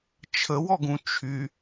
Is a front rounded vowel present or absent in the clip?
present